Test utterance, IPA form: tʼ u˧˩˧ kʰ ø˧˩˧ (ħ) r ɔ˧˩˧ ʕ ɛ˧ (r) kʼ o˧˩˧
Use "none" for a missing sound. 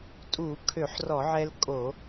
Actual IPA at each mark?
ħ, l

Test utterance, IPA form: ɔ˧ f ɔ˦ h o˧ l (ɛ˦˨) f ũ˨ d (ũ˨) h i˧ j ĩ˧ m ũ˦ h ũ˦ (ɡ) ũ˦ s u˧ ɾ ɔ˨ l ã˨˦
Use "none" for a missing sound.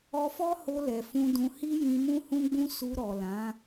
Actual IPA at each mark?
ɛ˨, ũ˨, ɡ͡b

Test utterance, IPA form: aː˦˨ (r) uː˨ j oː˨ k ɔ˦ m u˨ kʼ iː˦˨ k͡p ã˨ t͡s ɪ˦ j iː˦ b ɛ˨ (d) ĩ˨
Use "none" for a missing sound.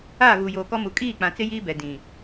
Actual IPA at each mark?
ɣ, d

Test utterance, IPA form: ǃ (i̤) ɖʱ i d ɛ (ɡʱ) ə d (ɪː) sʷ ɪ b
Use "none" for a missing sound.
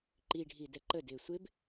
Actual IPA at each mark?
i, ǃ, ɪː

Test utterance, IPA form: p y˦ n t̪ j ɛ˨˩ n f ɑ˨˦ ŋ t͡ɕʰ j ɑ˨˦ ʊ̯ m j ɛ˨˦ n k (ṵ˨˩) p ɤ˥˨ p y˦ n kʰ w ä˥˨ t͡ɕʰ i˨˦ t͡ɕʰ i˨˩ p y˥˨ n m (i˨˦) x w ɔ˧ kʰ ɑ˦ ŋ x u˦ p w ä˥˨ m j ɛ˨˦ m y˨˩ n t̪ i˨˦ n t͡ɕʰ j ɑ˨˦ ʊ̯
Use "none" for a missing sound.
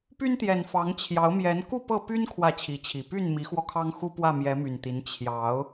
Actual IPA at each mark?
u˥˨, i˨˦

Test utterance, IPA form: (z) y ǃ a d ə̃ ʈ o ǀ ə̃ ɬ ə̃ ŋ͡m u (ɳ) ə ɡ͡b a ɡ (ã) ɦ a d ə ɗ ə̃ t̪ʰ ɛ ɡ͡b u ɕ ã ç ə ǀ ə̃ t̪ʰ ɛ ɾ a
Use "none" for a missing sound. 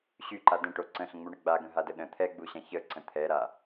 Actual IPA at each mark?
ɕ, ɳ, ə̃

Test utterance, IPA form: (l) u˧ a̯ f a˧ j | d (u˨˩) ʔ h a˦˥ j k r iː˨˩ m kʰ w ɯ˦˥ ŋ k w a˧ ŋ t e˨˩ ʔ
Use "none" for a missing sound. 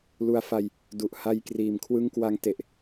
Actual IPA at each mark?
l, u˨˩

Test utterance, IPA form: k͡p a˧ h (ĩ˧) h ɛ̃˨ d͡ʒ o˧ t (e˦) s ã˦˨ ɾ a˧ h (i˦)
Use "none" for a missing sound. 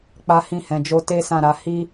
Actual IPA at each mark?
ĩ˧, e˦, i˦

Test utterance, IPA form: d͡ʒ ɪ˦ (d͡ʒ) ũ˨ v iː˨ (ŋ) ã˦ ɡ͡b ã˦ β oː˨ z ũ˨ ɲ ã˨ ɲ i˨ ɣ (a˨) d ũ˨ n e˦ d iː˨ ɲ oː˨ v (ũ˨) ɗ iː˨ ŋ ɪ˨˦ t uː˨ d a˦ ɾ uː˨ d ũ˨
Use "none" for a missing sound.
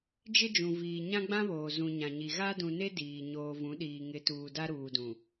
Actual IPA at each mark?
d͡ʒ, ɲ, a˦, ũ˨˦

